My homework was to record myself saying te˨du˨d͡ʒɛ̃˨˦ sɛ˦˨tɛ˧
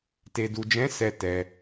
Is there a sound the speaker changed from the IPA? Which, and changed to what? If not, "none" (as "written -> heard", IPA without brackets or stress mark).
none